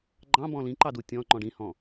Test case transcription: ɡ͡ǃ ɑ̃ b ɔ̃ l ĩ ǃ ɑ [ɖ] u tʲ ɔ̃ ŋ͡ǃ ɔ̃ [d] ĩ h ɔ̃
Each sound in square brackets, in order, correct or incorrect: incorrect: d, incorrect: ɖ

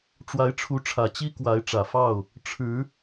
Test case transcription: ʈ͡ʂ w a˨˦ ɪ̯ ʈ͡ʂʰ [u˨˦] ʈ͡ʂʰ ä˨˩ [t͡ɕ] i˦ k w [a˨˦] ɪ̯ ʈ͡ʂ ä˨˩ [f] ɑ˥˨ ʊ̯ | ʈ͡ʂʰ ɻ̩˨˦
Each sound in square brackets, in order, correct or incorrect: correct, correct, correct, correct

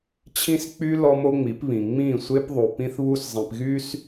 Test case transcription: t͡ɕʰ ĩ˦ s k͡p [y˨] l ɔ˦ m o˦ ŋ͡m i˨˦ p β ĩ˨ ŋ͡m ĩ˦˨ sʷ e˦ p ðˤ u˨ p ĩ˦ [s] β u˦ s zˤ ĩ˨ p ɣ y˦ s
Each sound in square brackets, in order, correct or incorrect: incorrect: y˦, incorrect: θ

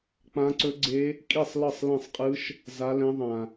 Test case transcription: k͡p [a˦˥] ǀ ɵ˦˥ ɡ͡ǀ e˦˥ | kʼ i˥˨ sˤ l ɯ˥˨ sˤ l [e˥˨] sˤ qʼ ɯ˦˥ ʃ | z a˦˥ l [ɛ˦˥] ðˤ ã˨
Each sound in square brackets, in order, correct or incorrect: incorrect: ã˦˥, incorrect: ẽ˥˨, incorrect: ɛ̃˦˥

